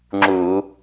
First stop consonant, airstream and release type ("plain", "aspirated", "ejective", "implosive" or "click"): click